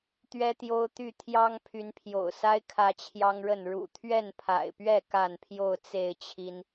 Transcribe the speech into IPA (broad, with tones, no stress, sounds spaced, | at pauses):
t̪ ɥ ɛ˦ t̪ j o˦ ʊ̯ t̪ y˥˨ t̪ʰ j ɑ˦ ŋ pʰ y˨˦ n pʰ j o̰˨˩ ʊ̯ s a˦ ɪ̯ kʰ ä˦ t͡ɕʰ j ɑ˦ ŋ ɻ ə˥˨ n ɻ ṵ˨˩ t̪ʰ ɥ ɛ˥˨ n pʰ a̰˨˩ ɪ̯ p ɥ ɛ˥˨ k a˥˨ n pʰ j o˥˨ ʊ̯ t͡s e˥˨ ɪ̯ t͡ɕʰ i˦ n